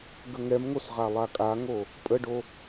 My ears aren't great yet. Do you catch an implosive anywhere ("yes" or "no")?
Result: no